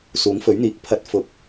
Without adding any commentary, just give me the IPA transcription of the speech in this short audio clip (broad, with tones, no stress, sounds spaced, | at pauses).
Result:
s uː˨˥ ŋ f ɵ˨˥ ɥ n̪ iː˨˥ k̚ pʰ ɐ˨˥ t̚ f ʊ˨˥ k̚